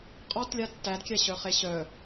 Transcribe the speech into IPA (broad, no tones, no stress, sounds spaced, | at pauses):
qʼ ɔ t lʲ a tː æ d kʲ æ ɕ œ χ e ɕ œ